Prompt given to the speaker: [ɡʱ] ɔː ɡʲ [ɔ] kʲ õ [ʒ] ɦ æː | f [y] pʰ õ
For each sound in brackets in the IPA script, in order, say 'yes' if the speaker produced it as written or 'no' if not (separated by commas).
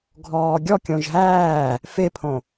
yes, yes, yes, no